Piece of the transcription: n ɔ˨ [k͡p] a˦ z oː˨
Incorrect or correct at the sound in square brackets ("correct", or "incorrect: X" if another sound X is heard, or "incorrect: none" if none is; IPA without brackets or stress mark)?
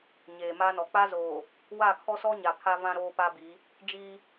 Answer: correct